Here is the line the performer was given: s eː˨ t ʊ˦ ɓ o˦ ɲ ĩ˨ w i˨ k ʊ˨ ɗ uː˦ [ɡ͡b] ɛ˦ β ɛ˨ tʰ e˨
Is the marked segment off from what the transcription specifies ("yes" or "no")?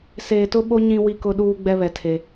no